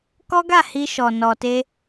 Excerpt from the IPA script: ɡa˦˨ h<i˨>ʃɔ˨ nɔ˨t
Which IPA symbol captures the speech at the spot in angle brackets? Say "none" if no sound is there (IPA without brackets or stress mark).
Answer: i˧